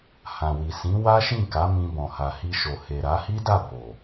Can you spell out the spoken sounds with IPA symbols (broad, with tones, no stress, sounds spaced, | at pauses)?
h ã˨ w i˨ s ĩ˨˦ w a˦ ʃ ĩ˦˨ k a˨˦ m ĩ˧ b ɔ̃˨ h a˨ h i˧ ʃ o˨ h e˨ ɾ a˨˦ h i˦ d a˦˨ b o˨